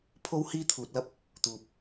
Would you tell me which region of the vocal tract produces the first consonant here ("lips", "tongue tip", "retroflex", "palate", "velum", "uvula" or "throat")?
lips